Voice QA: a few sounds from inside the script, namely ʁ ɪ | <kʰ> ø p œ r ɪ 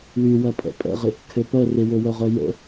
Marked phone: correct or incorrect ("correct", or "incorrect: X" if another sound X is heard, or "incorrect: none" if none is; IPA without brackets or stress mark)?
correct